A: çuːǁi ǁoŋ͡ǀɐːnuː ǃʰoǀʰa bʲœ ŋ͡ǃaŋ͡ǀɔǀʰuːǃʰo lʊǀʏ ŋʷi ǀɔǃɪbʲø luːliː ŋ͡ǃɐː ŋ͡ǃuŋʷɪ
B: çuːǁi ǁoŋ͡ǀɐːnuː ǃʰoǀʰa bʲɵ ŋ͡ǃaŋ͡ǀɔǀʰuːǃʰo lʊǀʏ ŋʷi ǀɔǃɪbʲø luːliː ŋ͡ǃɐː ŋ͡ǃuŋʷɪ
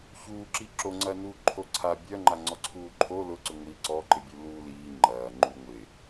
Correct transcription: A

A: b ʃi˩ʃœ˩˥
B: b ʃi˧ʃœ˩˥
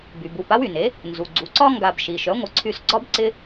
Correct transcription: A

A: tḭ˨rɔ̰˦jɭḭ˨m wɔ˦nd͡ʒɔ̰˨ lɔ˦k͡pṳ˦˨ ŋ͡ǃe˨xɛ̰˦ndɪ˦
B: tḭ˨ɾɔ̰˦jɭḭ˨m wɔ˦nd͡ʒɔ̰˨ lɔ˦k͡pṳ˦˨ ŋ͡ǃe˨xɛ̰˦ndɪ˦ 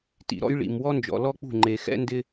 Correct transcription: B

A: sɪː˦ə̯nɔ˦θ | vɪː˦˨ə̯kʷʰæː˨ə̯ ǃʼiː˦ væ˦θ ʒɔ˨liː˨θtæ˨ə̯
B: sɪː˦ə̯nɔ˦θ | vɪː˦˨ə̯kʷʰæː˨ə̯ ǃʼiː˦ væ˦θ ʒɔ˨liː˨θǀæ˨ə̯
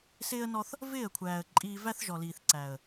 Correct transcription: B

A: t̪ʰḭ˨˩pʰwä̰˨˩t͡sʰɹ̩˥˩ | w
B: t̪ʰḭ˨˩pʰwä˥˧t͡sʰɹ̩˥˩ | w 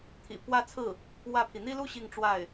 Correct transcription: B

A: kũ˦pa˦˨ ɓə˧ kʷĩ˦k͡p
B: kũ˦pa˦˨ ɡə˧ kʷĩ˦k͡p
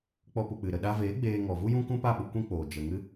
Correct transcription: A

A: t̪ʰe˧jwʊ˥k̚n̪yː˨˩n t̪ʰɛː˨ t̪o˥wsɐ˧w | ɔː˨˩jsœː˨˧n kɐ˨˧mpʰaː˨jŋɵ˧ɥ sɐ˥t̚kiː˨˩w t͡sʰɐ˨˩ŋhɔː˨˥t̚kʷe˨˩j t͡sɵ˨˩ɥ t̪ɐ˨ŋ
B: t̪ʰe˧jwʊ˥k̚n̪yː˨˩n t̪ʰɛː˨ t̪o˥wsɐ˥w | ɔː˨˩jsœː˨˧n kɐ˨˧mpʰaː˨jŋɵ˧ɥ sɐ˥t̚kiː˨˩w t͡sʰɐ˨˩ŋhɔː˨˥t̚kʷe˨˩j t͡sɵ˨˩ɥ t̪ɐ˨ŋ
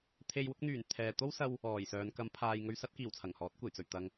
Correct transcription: A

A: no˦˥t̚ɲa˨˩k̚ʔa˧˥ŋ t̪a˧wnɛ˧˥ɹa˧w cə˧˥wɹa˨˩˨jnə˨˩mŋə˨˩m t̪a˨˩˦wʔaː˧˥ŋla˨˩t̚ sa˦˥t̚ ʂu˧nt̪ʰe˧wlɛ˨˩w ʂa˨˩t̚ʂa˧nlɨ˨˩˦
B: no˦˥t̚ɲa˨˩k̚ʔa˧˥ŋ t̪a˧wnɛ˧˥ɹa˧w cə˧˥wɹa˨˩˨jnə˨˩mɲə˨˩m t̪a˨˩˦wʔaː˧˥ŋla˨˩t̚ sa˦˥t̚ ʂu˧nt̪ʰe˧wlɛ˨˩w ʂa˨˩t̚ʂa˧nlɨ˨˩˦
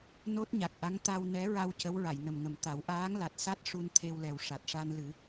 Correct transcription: A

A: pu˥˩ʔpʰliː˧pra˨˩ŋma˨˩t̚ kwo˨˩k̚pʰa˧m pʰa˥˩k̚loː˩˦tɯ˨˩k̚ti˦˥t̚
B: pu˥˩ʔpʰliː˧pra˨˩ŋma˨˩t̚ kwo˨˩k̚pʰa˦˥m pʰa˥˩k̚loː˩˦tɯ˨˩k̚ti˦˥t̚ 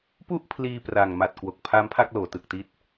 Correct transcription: B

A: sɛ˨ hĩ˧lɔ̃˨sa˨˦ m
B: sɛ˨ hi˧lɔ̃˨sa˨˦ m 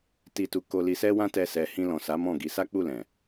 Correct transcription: A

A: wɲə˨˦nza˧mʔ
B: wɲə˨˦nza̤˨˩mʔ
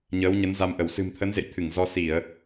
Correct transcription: A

